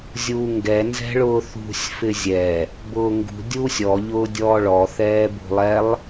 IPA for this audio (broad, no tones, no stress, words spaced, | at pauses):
zʲuːŋɡɛ nzɛ̤ɭʊːθṳsʲ fɪzʲɛ | bʊːŋɡṳ dʲuːsʲɔ ʎʊːdʲɔːɭɔ θɛːbṳlˠɛlˠ